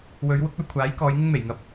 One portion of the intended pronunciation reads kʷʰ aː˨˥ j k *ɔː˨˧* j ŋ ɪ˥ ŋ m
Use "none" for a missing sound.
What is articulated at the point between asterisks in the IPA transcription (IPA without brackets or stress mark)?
ɔː˨˧